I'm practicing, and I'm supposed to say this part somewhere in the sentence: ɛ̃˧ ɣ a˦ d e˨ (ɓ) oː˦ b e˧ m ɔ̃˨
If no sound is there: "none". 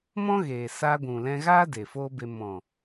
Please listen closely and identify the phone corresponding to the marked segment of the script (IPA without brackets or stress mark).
f